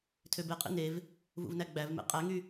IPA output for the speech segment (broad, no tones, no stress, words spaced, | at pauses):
tʰøbeqʼḭ nev | vṵvnæɡ͡bævmḛ qʼæŋy